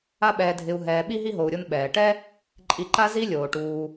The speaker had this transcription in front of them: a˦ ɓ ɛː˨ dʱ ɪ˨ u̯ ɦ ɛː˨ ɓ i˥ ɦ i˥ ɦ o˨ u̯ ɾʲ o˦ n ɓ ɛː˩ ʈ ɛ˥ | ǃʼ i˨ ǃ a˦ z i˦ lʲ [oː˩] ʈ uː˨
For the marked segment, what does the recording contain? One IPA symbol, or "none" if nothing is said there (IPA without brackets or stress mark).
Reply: oː˩